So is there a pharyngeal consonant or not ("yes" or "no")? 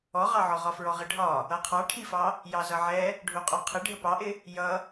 yes